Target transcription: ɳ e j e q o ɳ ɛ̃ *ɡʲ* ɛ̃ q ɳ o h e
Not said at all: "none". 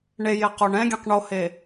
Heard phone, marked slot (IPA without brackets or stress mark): ɡʲ